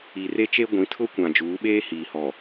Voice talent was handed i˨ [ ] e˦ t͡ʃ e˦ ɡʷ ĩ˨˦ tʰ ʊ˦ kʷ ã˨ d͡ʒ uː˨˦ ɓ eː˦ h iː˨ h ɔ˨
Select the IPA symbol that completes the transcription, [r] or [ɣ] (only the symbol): r